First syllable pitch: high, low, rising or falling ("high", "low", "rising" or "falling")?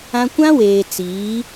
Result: high